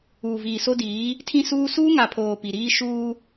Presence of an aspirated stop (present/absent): present